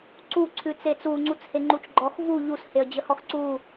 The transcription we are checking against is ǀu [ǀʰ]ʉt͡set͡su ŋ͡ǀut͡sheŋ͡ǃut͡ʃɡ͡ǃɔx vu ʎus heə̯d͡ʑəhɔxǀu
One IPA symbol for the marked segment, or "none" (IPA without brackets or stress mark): ǀʰ